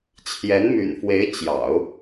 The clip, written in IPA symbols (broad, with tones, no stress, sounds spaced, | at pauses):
t͡ɕʰ j ɛ˧˥ n m y̰˨˩ n f w e˧˥ ɪ̯ t͡ɕ j ɑ̰˨˩˦ ʊ̯